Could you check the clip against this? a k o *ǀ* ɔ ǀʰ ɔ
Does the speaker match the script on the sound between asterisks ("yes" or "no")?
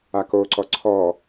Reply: yes